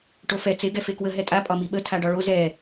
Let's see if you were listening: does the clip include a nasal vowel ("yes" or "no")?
no